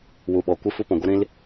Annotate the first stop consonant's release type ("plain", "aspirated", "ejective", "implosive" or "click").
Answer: implosive